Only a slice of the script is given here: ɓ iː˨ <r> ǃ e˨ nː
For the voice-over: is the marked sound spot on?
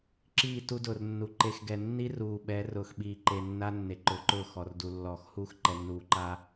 no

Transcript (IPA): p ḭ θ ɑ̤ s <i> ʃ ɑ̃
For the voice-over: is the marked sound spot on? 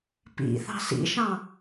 no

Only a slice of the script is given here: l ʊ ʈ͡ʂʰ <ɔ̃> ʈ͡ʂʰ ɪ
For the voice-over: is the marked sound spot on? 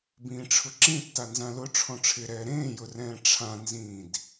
yes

